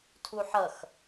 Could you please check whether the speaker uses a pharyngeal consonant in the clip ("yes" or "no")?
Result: yes